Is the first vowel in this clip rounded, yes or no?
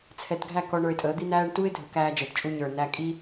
no